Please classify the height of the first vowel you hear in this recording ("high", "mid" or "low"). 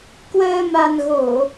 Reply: mid